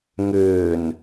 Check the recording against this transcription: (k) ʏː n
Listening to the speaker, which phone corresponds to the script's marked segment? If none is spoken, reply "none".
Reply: ŋ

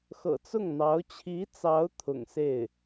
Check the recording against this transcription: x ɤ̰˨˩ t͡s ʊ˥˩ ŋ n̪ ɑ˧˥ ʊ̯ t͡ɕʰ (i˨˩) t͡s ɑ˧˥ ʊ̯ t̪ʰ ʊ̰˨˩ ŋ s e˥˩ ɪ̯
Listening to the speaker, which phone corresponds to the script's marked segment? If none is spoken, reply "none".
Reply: i˧˥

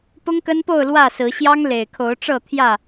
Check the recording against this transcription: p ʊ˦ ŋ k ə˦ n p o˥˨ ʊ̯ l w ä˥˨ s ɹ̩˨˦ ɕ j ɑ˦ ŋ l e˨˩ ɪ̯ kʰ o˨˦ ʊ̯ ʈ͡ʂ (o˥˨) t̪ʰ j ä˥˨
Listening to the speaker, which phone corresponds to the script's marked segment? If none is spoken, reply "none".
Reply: ɤ˥˨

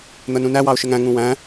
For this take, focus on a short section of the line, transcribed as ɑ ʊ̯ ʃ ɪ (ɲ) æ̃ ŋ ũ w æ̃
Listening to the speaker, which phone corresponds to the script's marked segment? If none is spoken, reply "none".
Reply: ŋ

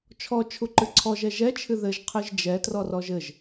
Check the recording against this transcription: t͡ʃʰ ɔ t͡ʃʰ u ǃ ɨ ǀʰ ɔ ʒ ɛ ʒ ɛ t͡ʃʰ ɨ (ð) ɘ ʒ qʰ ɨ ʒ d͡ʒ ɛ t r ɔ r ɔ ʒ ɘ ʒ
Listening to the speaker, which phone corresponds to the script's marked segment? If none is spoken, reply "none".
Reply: ð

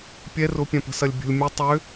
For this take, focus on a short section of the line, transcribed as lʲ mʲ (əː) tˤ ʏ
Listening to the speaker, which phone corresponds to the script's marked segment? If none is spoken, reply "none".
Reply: ə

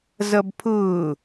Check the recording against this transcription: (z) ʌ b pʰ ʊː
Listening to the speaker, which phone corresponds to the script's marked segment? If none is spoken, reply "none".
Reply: z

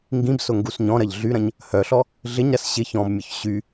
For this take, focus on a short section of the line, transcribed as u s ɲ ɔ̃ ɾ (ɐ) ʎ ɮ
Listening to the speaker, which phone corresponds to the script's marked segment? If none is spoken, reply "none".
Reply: ɐ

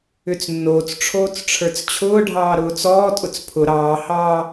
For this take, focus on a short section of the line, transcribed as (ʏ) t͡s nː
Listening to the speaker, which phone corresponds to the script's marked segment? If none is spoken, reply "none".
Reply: ʏ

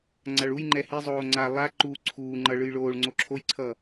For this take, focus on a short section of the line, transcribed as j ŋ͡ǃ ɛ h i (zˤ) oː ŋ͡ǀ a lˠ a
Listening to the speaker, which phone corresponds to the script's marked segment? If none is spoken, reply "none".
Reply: zˤ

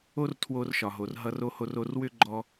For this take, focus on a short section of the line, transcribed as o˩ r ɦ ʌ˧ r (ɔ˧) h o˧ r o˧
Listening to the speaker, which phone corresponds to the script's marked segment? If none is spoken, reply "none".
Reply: o˧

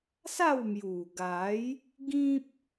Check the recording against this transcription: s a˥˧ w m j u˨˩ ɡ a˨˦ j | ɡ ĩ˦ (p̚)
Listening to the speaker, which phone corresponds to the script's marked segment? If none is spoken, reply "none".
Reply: p̚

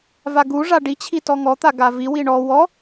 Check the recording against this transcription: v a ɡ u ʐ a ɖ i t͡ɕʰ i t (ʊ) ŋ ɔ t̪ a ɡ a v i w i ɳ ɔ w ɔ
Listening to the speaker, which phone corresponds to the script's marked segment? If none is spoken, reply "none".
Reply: ɔ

